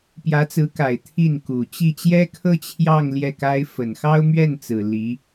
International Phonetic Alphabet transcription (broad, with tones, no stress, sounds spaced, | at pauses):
p j ä˧˥ t͡s ɹ̩˧˥ k a˨˩ ɪ̯ t̪ʰ i˥˩ n k u˨˩ t͡ɕ i˥˩ t͡ɕ j ɛ˥ kʰ ɤ˥ t͡ɕʰ j ɑ˥˧ ŋ l j ɛ˥˩ k a˥ ɪ̯ f ə˨˩ n x ɑ˥ ʊ̯ m ɥ ɛ˥˩ n t͡s ɹ̩˨˩ l i˧˥